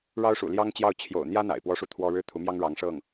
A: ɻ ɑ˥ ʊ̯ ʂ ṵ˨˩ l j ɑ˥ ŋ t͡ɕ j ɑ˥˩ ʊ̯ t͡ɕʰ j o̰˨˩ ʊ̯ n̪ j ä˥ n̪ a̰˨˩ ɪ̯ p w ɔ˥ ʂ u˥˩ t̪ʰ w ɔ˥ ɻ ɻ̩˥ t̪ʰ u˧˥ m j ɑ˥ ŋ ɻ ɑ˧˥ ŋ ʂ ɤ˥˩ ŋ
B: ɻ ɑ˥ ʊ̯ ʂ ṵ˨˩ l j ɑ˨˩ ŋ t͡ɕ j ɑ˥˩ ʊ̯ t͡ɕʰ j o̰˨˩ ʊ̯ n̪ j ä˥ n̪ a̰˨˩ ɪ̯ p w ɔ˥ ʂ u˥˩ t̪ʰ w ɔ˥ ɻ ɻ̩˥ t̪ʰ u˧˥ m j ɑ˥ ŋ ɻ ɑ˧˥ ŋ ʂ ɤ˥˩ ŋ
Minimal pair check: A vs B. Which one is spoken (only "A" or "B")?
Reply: A